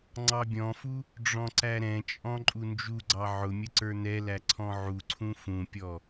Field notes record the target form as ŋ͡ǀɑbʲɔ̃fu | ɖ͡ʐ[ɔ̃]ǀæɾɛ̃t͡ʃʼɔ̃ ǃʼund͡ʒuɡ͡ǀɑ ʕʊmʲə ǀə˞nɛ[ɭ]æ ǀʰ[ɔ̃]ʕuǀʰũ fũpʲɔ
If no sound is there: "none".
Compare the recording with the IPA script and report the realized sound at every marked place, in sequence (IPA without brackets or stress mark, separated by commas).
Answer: ɔ̃, l, ɔ̃